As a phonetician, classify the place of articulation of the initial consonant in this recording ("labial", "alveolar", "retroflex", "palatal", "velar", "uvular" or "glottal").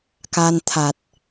velar